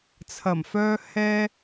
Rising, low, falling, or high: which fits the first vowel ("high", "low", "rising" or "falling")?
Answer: low